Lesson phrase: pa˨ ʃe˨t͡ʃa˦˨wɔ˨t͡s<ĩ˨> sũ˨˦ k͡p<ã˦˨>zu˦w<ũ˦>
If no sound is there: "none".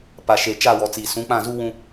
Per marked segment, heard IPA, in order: i˨, ã˦˨, ũ˦

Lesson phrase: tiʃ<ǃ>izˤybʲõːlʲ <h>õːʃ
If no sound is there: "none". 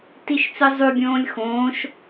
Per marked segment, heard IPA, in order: t͡s, x

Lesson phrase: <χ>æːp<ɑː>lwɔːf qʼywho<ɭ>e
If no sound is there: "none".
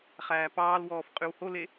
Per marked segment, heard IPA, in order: χ, ɑː, l

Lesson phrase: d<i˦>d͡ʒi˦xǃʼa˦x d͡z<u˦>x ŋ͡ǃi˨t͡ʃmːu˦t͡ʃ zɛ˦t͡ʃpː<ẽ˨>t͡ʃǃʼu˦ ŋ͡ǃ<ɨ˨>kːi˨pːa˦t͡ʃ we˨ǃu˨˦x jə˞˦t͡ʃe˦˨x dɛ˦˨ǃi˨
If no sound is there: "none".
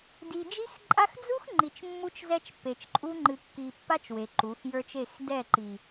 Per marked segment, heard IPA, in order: i˨, u˦, e˨, ɨ˨

